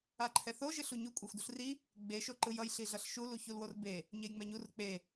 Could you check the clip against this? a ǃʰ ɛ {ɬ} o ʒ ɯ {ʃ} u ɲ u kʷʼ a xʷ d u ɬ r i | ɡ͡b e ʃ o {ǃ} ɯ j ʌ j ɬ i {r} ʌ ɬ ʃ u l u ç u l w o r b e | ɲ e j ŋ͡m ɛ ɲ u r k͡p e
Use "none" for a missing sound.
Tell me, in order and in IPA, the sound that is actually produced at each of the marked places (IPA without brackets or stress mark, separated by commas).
θ, ɬ, ǃ, ɮ